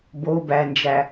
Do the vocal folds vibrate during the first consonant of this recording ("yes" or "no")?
yes